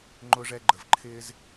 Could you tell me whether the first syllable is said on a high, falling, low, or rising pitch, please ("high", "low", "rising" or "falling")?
high